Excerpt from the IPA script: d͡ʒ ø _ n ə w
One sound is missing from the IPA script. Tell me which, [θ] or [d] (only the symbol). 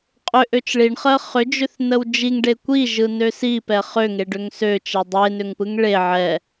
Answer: θ